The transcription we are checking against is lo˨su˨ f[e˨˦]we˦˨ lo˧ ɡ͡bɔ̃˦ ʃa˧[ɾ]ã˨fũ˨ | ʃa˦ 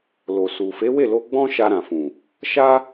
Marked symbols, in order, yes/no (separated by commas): yes, yes